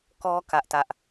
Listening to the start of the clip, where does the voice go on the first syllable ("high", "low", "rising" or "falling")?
high